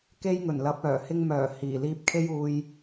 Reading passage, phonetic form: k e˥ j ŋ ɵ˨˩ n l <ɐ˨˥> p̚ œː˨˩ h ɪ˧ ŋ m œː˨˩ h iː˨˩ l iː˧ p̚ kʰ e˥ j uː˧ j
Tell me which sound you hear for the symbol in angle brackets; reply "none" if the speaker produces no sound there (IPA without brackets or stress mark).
ɐ˨˥